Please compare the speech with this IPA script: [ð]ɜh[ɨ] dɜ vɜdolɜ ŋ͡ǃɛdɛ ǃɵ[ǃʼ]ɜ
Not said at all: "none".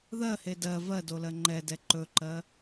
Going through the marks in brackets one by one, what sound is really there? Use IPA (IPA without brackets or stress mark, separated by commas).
ð, e, ǃ